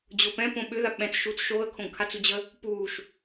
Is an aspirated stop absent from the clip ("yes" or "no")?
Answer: no